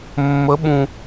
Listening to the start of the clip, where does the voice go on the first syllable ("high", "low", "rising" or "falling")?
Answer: rising